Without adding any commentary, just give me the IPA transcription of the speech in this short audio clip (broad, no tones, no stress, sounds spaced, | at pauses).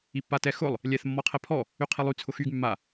i pː a t ɛ x ʊ lˠ | lʲ ɛ θ mː ɔ qʰ ɛ pʰ ɔ | y qʰ i lˠ y t͡sʰ ʊ x y ɡ mː a